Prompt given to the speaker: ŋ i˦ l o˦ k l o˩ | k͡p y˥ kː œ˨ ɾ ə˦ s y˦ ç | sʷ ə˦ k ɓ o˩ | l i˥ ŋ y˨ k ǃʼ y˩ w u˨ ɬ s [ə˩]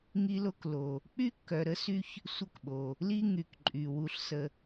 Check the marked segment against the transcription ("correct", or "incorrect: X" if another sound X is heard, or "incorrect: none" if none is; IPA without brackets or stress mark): incorrect: ə˨